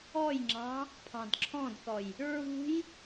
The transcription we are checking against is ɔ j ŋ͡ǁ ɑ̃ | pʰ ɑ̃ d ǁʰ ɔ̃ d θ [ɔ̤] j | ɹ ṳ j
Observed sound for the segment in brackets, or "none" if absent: ɔ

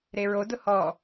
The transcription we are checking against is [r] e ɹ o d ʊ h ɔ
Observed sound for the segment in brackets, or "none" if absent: ɾ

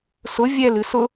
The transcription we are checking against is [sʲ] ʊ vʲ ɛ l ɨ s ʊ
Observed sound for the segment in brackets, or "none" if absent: s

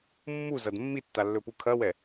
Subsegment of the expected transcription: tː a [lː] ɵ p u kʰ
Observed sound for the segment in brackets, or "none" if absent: lː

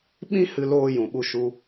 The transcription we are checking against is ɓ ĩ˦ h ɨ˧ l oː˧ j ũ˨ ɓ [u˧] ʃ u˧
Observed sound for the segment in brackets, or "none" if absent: u˧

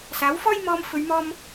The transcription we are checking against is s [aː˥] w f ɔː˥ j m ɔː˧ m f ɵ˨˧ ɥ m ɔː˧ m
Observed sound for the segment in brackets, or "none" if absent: aː˨˥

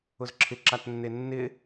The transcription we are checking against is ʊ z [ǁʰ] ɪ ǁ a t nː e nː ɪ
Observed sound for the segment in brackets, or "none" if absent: ǁʰ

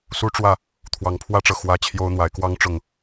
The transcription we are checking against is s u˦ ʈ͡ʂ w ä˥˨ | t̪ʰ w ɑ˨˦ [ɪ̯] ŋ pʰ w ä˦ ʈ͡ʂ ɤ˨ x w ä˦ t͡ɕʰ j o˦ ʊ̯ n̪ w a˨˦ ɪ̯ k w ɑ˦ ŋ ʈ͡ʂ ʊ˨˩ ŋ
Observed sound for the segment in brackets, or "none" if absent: none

